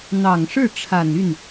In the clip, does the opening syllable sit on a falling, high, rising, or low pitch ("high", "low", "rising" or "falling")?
low